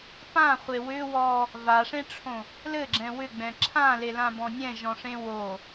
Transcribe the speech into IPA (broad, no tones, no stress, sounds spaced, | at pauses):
p ã χʷ e w ʏ w ɔ | v a ʂ ẽ ʈ͡ʂʰ õ | l ɘ ɡ͡ǁ ɛ̃ w ʏ ɡ͡b ɛ̃ ǁʰ ã l e l ã b ɔ̃ nʲ ɛ̃ ʒ ɔ̃ ʂ ẽ w o